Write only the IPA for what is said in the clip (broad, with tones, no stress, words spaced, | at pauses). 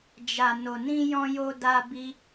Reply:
d͡ʒa˨ no˨nĩ˧jɔ̃˧ jo˧da˧bi˧